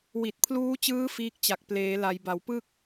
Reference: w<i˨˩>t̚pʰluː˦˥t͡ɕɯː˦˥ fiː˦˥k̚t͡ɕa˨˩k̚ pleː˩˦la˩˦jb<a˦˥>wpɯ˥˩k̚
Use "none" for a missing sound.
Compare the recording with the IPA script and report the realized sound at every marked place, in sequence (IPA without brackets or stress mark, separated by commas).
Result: i˨˩, a˩˦